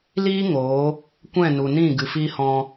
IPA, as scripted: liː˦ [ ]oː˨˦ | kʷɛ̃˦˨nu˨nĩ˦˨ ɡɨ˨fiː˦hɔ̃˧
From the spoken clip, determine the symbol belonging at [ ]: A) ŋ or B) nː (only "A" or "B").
A